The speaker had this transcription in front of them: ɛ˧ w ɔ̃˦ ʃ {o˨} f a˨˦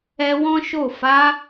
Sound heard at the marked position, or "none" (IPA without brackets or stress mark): o˦˨